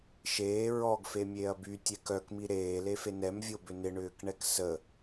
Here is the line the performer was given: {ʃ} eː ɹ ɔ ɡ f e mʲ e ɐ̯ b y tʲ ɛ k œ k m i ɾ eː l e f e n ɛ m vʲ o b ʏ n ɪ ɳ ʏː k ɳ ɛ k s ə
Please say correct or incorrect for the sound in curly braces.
correct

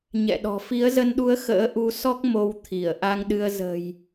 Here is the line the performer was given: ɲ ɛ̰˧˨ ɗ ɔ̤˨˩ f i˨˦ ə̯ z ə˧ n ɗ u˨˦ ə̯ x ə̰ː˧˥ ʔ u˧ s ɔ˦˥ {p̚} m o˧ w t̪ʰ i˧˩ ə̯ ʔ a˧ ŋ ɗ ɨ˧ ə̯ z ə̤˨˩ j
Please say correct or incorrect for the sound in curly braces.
incorrect: k̚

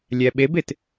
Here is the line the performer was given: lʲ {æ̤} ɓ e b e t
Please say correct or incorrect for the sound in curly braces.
incorrect: æ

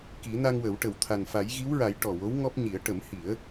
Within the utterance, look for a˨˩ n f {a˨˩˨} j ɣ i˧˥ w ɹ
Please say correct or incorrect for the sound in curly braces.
incorrect: a˨˩˦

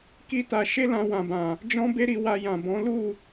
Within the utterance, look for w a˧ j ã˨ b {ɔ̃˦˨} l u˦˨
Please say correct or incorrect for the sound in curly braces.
incorrect: ɔ̃˨˦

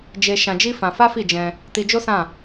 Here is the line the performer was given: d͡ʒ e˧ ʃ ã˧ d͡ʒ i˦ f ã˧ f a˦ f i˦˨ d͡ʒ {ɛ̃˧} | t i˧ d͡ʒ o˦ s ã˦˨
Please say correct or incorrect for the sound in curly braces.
correct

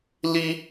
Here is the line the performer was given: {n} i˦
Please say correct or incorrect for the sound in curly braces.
incorrect: l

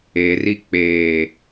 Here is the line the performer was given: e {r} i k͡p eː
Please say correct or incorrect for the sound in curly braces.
correct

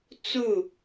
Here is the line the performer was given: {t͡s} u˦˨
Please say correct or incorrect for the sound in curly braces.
correct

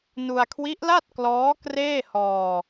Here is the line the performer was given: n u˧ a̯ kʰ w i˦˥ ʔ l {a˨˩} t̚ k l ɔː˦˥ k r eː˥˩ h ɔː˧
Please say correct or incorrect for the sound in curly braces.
incorrect: a˥˩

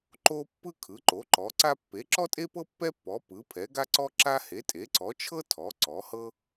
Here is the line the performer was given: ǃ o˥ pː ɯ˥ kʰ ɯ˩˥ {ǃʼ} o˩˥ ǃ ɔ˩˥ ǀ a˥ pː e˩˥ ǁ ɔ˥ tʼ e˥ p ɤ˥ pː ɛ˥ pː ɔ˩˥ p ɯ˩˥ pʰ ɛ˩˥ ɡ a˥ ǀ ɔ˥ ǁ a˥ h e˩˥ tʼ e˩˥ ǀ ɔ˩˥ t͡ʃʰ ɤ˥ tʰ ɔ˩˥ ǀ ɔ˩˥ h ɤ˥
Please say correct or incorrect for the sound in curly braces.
incorrect: ǃ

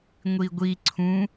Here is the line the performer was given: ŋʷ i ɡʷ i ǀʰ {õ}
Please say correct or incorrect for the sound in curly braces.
incorrect: ũ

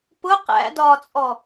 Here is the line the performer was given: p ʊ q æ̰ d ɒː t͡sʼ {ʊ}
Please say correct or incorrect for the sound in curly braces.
incorrect: ɔ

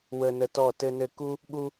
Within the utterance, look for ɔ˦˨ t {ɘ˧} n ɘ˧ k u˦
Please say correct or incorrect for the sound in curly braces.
correct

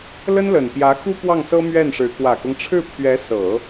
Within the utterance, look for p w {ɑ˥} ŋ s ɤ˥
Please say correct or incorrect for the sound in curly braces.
incorrect: ɑ˥˩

